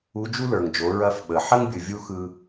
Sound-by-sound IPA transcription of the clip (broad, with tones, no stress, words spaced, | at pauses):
u˧˥d͡ʒu˥lə˞˩ŋ d͡ʒo˩˧ɹɐ˧fɓə˩ħɐ˥ŋ bʲɯ˩vʲu˥xɯ˧